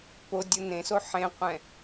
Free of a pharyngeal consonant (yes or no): no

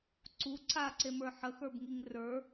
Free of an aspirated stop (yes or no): yes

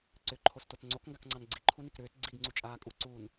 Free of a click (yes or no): no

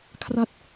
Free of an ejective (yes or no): yes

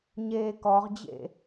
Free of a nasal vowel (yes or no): yes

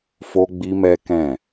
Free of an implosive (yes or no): yes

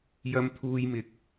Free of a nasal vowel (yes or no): yes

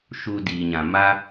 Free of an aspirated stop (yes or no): yes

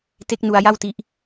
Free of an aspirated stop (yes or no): yes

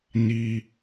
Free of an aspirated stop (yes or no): yes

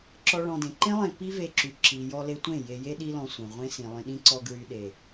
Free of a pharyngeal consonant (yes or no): yes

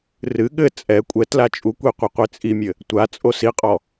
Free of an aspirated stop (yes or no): yes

